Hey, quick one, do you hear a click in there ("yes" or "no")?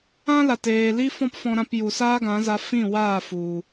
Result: no